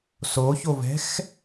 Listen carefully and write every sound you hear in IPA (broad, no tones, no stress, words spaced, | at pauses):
soçovɛ̤x